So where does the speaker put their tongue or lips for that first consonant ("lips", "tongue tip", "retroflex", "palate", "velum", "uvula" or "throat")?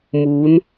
lips